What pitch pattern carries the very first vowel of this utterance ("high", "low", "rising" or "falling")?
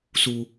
low